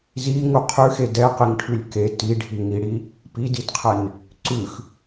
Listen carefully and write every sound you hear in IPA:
z i ŋ u qʰ ʉ x e d ɛ q i ŋ ʈʰ ʉ lʲ k e t i ɖʱ i ŋ i ɽ i | p i d i d qʰ ɛ n | ǀ ʉ x

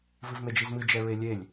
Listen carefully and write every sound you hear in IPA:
v ɨ v m e d͡ʒ i z m ɨ d͡ʒ ɛ ɹ e lʲ e lʲ

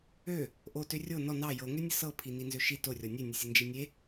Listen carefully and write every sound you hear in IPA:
ø | ʔ o t ø rʲ o n ɔ n ɑ j ɤ ŋ ø nʲ ə s ɤ pʰ i n i n z ø ʃ i t o rʲ ɔ nʲ ø nʲ ə sʲ ə n d͡ʒ i nʲ e

